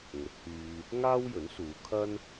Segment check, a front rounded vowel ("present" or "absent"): present